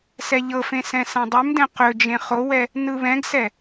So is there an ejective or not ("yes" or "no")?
no